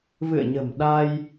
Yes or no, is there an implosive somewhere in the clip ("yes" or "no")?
yes